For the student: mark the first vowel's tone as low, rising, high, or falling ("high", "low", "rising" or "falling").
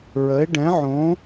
rising